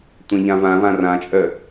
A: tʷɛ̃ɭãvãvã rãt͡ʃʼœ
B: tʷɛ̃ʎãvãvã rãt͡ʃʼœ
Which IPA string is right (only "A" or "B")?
B